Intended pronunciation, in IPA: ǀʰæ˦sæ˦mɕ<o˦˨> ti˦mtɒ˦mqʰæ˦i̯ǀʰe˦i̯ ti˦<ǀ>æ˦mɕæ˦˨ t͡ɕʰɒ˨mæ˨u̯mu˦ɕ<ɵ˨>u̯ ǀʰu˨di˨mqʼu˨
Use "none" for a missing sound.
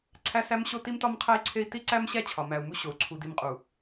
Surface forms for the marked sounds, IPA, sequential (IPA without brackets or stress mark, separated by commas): o˦, ǀ, o˨